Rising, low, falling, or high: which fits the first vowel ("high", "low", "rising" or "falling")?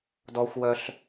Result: high